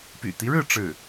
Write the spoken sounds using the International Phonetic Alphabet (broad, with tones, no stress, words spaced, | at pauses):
py̰˨˩t̪i˦ɻɻ̩˥˧ ʈ͡ʂɻ̩˥˩